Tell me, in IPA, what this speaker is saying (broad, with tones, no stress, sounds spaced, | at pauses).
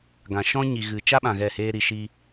ɡ ã˨ ʃ ɔ̃˦ ɲ i˨ ɣ ɨ˨ t͡ʃ a˦ ɓ ã˨ ɣ ɛ˦˨ h eː˦ ɾ i˧ ʃ iː˦